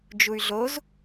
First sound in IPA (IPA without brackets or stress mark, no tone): d͡ʒ